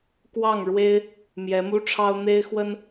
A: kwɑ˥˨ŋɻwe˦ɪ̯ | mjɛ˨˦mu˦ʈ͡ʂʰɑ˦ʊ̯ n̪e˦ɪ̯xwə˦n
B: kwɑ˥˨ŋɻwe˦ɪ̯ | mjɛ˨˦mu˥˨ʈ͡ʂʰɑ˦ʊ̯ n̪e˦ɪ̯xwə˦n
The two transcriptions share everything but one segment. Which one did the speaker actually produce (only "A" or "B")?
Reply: A